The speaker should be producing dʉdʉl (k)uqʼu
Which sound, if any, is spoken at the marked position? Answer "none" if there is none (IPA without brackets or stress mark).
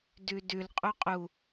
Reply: qʼ